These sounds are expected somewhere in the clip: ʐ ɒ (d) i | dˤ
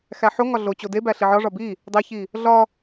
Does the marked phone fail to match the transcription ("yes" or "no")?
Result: yes